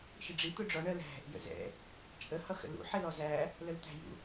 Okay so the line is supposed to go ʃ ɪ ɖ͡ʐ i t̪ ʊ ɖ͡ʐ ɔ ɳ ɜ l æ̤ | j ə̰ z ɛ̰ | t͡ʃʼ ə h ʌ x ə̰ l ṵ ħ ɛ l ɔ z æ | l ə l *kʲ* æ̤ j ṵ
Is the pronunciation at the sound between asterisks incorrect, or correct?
incorrect